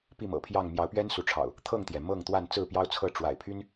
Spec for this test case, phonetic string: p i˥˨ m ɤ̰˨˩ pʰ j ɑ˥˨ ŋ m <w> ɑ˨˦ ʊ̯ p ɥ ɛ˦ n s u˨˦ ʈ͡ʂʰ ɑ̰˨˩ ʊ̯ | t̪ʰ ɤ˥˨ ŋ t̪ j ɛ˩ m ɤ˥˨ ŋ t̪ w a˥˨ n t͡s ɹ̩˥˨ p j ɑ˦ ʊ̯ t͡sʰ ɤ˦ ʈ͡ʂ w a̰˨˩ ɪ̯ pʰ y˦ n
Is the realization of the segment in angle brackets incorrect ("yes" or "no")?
yes